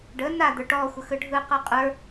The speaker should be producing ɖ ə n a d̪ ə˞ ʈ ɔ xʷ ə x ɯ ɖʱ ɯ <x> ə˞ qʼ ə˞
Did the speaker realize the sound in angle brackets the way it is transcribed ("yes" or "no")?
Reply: no